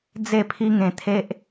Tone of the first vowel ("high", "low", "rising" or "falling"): falling